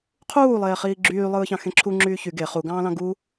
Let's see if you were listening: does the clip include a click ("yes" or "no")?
yes